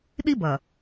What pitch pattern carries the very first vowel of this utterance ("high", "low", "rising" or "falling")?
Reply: high